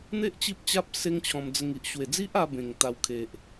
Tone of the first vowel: high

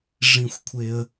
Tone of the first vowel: high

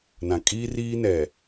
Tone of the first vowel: low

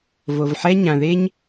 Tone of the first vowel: low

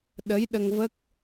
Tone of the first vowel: rising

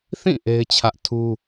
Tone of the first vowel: falling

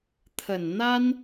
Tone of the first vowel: low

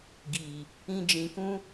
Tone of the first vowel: low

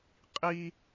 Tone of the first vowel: high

